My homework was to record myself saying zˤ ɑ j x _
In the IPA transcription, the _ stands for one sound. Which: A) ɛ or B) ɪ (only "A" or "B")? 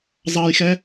A